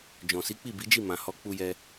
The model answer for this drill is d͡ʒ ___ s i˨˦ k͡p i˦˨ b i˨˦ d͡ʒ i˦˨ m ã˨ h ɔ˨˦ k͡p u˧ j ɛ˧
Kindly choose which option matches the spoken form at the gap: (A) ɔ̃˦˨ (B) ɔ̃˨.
B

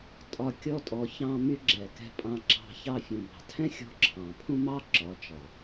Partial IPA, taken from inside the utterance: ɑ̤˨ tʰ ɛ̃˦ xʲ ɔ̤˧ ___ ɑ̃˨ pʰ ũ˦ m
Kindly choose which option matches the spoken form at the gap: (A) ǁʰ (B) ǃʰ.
A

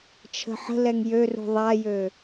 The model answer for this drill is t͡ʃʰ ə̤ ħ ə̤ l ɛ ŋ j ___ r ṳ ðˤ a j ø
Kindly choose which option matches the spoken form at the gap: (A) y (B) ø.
B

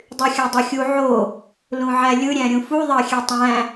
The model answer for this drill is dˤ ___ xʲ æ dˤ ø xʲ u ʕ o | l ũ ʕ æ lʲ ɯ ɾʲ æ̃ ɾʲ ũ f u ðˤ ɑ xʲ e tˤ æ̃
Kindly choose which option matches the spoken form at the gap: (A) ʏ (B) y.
B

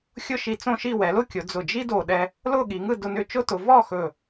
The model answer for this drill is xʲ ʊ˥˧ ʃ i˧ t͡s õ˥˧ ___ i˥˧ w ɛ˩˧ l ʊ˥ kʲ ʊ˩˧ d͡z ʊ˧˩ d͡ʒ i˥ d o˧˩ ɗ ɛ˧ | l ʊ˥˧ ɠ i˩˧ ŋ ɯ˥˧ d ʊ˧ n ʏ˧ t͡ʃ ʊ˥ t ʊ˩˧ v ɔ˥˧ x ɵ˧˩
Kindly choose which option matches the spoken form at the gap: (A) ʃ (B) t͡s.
A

